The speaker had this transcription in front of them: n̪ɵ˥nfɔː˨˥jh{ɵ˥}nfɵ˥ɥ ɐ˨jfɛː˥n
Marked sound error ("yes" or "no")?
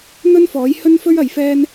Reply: no